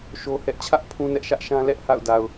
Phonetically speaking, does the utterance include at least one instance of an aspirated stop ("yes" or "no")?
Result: yes